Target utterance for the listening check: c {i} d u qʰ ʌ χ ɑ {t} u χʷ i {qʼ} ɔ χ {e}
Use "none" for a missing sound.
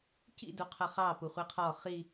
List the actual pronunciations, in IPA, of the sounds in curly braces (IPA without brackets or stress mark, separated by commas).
ḭ, p, qʰ, i